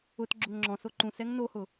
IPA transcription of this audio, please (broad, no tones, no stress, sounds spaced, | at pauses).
ʊ t ɡ͡ǁ ʊ ŋ ŋ͡ǁ ɔ̃ s o ǃ ũ s ɛ ŋ n o h ʊ